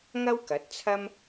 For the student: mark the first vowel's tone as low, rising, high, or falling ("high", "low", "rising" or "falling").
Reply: high